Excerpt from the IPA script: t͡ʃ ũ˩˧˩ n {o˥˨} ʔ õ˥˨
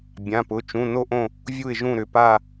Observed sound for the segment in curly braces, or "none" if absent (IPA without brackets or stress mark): o˥˨